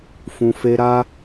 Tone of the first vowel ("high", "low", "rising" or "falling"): low